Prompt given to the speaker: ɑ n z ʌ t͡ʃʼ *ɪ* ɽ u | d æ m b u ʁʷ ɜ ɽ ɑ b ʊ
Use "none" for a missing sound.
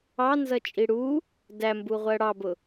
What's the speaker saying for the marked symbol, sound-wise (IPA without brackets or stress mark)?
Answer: i